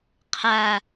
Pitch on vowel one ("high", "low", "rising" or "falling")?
low